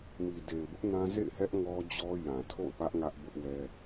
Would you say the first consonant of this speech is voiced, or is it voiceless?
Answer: voiced